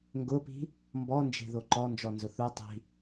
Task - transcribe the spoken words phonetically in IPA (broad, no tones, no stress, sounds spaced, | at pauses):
ŋ ɡ ʊ p i̤ | m b ɔ n d͡ʒ e̤ ð o ǃ ɔ n d͡ʒ ɔ n z ʊ θ u tˤ i̤